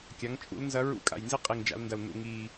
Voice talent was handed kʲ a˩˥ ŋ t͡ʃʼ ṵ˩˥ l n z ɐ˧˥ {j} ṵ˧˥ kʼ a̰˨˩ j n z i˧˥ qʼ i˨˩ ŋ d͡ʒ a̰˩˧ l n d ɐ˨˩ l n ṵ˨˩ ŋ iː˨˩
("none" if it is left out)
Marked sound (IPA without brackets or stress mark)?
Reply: ɹ